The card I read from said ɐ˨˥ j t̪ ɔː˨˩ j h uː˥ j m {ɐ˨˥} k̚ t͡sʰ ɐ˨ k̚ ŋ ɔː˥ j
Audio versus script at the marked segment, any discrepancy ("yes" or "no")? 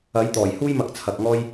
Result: yes